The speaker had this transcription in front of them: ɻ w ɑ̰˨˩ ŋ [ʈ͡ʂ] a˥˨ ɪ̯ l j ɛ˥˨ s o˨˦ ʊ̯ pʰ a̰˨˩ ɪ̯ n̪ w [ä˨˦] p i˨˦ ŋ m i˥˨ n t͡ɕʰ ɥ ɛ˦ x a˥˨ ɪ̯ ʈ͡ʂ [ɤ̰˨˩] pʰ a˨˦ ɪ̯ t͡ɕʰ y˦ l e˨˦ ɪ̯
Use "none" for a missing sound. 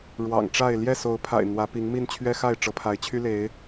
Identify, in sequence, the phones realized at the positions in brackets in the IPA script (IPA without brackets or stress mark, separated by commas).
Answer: ʈ͡ʂ, ä˨˦, ɤ˨˦